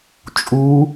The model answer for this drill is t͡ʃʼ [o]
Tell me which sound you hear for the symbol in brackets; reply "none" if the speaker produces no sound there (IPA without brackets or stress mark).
u